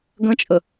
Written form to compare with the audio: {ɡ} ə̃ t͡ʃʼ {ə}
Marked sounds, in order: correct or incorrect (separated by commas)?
correct, correct